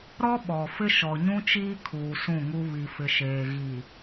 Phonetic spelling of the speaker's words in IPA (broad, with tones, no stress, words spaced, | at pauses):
ɾɔ˦ɓɔ˨fɪ˦ ʃɔ˨ɲũ˦t͡ʃiː˦ kʰuː˨sũ˦˨ŋu˦ βi˨fɪ˨ʃeː˨ ɣi˨